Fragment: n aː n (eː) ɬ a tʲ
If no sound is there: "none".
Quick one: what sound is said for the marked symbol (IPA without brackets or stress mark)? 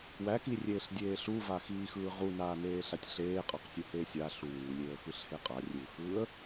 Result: eː